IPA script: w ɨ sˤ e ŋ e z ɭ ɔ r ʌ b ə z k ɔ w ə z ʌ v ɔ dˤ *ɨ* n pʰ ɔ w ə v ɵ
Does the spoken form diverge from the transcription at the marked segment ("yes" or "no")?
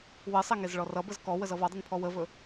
no